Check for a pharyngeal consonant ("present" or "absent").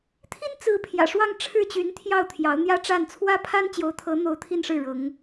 absent